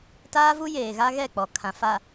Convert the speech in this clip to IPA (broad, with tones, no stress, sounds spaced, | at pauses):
t aː˦ v u˦ j eː˨ ɣ a˦ ɣ ɛ˦˨ k͡p ɔ˨ kʰ ã˨ f a˨